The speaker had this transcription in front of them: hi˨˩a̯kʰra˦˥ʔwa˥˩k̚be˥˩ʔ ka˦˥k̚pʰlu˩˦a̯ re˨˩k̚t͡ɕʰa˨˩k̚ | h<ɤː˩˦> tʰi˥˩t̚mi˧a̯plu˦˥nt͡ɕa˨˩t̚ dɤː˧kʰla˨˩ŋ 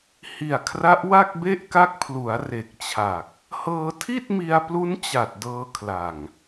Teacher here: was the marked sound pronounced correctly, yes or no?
no